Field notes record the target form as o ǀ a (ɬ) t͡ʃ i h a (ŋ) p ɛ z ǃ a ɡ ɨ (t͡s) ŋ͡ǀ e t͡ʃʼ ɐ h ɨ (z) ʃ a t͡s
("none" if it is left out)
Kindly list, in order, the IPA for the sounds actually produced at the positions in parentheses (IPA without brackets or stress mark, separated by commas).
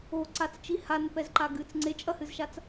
t͡s, n, t͡s, z